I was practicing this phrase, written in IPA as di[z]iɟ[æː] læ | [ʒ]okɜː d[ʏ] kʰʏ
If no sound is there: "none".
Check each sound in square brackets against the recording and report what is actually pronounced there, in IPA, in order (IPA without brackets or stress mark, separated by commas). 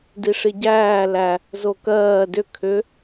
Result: ʂ, æː, z, ʏ